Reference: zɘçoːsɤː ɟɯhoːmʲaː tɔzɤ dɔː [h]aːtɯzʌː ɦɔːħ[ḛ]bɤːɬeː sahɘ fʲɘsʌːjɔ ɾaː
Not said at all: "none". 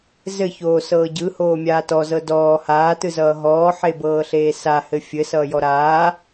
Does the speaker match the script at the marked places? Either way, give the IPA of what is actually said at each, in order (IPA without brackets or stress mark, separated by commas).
h, e